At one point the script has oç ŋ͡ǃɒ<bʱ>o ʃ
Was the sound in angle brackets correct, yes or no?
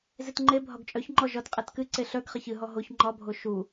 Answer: yes